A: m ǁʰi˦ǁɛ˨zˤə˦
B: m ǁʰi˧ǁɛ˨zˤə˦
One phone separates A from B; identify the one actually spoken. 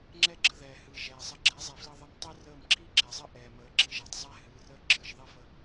A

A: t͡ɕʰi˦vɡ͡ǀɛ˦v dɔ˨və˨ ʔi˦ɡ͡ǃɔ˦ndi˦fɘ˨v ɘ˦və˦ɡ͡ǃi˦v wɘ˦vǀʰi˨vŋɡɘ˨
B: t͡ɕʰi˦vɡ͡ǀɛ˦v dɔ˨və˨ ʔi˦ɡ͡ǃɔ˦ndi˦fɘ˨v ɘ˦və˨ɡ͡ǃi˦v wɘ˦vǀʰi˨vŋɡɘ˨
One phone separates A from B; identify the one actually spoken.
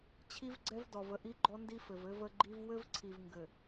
A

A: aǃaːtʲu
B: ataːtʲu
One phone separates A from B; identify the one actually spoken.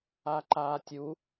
A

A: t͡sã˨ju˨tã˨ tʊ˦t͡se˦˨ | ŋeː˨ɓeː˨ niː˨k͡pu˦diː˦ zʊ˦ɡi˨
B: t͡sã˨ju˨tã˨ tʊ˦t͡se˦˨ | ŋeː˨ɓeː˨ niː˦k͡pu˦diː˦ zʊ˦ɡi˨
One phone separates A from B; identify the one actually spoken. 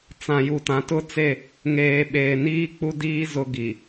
B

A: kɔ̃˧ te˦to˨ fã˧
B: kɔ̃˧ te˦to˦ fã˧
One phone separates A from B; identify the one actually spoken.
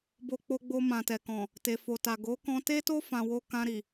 B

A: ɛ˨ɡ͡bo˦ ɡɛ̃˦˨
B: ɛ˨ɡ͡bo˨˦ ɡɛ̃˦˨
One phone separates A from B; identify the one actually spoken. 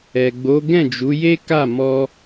B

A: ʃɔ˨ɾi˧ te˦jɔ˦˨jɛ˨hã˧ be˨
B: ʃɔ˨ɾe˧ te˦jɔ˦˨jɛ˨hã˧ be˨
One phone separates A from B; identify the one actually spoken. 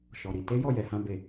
A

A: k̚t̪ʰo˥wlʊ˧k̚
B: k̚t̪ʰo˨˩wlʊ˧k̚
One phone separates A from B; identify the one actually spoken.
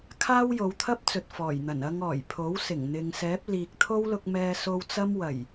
A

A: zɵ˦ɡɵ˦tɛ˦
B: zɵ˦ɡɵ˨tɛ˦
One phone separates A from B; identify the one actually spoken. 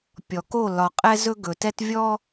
B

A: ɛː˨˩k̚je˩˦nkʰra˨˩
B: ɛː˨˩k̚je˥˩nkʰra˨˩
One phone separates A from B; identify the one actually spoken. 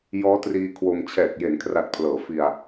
A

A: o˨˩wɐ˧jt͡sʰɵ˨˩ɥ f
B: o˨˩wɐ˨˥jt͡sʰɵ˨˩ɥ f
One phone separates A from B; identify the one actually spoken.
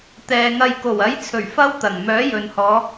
B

